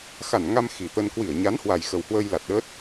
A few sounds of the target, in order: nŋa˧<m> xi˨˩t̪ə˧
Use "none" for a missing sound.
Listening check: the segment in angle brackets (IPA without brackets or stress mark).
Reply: m